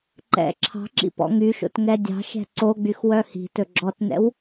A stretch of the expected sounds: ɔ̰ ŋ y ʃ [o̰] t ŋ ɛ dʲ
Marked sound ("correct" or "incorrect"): correct